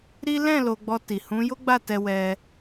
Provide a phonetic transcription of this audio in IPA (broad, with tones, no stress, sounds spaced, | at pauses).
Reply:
ɾ i˦ l ɛ̃˦˨ l o˧ ɡ͡b ɔ˧ t i˨ h ũ˨˦ j o˦ ɡ͡b a˦˨ t ɛ˧ w ɛ˧